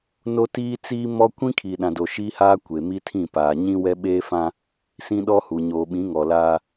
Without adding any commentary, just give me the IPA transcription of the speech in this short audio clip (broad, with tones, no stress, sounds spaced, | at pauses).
n o˦ t iː˦ t͡s iː˦ m ɔ˦ kʷ ĩ˦ kʰ i˨ ɗ ã˨ d o˨ ʃ iː˦ h aː˦ kʷ e˨ m i˦ tʰ ĩ˦˨ p aː˨ ɲ ĩ˦ w ɛ˦ ɓ eː˦ f ã˦ | s ĩ˦ ɗ ɔ˦ h u˨ ɲ oː˨ ɓ ĩ˨˦ ŋ ɔ˨ l aː˦